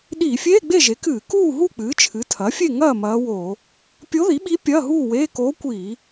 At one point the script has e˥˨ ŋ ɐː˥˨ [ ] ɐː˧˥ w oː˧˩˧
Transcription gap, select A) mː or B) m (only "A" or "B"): B